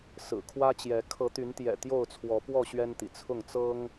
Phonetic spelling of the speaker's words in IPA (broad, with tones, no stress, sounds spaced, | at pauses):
s ɹ̩˨˩ kʰ w ä˦ t͡ɕ j ɛ˨˦ kʰ ɤ˨˦ t̪ y˨˦ n t̪ j ɛ̰˨˩ t̪ j o˥˨ ʊ̯ t͡sʰ w ɔ˨˦ p w ɔ˥˨ ɕ ɥ ɛ˦ n t̪ ḭ˨˩ t͡sʰ ʊ˥˨ ŋ t͡s ɤ˦ ŋ